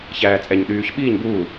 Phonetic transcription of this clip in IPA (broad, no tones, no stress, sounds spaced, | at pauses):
ç æː t͡sʼ ɛ ɲ ɗ yː ç ɓ iː ɲ b uː